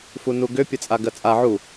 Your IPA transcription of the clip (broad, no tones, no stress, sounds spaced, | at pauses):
f u n u ɡ ʏ pʲ ə t͡sʼ a ɡ ɜ t͡sʼ a ʕ u